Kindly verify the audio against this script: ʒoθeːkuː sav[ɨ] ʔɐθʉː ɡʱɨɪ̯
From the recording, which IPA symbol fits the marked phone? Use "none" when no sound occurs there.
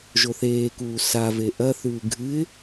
e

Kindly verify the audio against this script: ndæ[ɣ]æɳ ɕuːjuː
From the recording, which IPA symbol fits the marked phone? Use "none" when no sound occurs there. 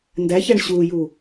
ç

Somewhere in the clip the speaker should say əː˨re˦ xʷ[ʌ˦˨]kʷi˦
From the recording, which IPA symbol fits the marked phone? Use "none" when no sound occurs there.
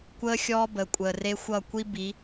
ʌ˦˨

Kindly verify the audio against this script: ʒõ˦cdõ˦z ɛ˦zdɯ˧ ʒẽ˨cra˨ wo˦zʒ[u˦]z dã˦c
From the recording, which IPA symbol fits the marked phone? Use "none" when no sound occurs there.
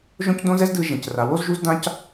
u˦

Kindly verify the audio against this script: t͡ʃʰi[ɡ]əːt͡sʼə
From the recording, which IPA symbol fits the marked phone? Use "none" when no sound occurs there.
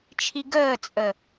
ɡ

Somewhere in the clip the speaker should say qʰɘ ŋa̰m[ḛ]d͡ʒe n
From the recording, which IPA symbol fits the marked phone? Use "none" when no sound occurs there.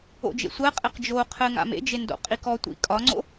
ḛ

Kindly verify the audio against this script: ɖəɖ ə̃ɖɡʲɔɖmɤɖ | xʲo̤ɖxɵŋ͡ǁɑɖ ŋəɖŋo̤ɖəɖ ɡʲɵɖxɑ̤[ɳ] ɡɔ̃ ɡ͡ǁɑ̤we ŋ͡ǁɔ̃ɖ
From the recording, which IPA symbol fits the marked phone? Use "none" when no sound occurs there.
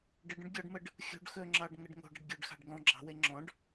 ɖ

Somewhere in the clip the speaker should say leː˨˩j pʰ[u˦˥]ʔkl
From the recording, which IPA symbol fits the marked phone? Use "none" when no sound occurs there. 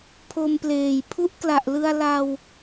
u˦˥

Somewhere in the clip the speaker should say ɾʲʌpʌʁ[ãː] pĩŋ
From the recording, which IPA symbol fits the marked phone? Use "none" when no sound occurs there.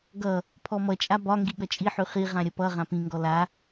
ã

